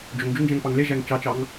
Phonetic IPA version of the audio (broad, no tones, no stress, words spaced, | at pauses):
d͡ʒoŋd͡ʒuŋd͡ʒæ̃ŋpɑŋ leʒæŋ t͡ʃɑt͡ʃɑŋ